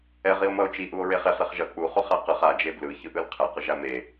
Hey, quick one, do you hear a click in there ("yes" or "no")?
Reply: no